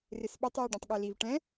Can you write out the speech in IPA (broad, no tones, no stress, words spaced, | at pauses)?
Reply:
rɪsɓɪtˤ jeɖɛ̃tˤɠɛliv ʈɛ̃